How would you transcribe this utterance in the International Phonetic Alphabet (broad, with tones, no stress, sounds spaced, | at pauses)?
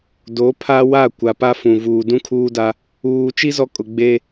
d o˨˦ pʰ a˦ w a˦˨ kʷ a˨ p a˦ f ũ˨ v uː˨ d ũ˦ kʰ uː˦ d a˦ | uː˨ t͡ʃ i˦ z ɔ˦ kʼ ʊ˨ ɡ͡b e˦